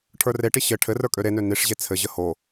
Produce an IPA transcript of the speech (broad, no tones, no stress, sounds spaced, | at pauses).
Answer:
ʈʰ ə˞ r e ʈ i ɕ ɘ ʈʰ ɘ r ə˞ kʼ ø ɾ e n ø n i ʂ ʑ e t͡sʰ ɘ ʑ ə h o